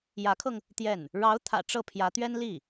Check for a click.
absent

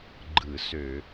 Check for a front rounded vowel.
present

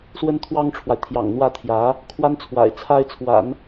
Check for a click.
absent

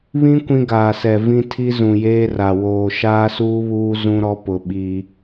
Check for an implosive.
present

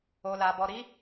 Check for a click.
absent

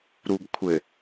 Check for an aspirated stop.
present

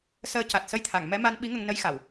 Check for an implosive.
present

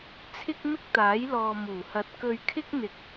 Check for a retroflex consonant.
absent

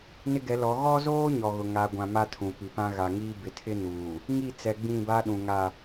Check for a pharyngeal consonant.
absent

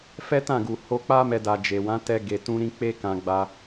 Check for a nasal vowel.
present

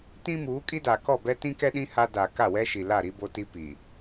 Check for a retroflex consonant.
absent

